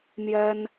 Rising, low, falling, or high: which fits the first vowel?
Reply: high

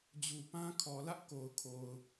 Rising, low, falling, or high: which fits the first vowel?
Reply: low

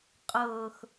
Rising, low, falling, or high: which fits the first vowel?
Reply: low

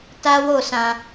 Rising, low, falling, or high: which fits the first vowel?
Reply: high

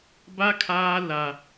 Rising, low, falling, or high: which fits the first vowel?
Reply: high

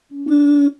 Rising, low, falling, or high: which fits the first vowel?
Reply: high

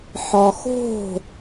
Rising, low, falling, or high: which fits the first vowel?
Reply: low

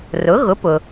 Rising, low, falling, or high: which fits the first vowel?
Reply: rising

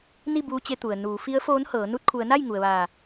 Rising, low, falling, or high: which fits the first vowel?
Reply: falling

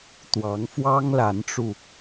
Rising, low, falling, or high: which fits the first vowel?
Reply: rising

